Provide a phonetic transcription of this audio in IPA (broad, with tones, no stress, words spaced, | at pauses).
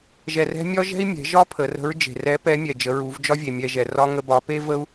ʒɛ˧rɛ̤˥ mʲɒ˥ʒɛ̤˥i̯mʲɛ̤˩˧ʒɒ˥ pʰə˩˧rə̤˧˥ɹ d͡ʒe̤˩rɛ˧˥pɛ˧˥mʲɛ˩ d͡ʒə˩˧ɹu˩˧vd͡ʒɒ˥vʲe˩ mʲɛ˧ʒɛ˩ rɒ˥ ŋə˧bɒ˩˧pe˥ və˥u̯